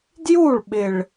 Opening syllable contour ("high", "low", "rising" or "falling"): falling